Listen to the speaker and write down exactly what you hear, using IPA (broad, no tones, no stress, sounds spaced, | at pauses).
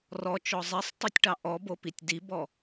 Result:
r ɔ t͡ʃ ɔ zˤ ɛ sˤ tˤ ø tʲ ʈ ɑ ʔ ɔ b o p i tʲ d i b ɔ